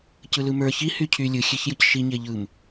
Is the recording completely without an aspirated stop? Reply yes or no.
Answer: no